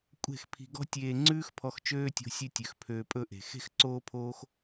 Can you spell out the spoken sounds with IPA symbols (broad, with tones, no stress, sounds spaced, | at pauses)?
kʷʼ e̤˦˨ x pʰ i̤˧ ɡ ɔ̤˦ tʲ eː˧ ŋ͡ǀ ʉː˦ x pʰ ɔ˧ x t͡ʃ øː˦ tʲ o̤˧ sʲ ʉ˧ tʲ ø˨ x pʰ øː˧ pʼ ɵ˦˨ ʔ e̤˨ x e̤˦ x ǀ oː˦ pʰ oː˦ x